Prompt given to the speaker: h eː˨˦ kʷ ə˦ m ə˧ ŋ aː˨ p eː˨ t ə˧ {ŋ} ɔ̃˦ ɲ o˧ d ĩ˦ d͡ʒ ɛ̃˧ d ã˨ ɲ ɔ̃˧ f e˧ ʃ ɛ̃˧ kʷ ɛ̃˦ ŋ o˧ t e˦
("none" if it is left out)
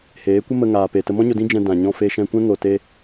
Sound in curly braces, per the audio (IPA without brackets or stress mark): m